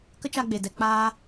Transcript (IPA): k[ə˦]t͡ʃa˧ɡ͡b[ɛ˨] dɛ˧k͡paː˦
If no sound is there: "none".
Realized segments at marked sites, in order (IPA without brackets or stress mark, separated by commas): ə˦, e˨